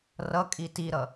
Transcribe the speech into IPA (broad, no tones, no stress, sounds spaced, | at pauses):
r ʌ kʼ i t i ɾ ʌ